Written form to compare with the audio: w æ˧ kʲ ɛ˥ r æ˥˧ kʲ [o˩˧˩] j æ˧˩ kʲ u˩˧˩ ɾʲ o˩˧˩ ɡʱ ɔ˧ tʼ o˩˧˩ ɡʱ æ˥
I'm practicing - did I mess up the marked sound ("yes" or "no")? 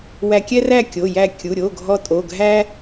no